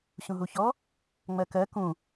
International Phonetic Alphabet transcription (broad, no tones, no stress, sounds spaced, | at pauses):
ɕ ũ ɦ u ç ɔ | ŋ͡m ɜ k ɜ k ũ